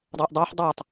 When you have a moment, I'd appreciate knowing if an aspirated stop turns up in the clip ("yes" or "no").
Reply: no